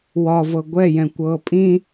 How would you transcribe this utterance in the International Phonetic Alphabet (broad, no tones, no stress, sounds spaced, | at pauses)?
w ɒ v ɤ ɡʷ ɛ j ɛ̃ kʷ ɤː pʼ ĩ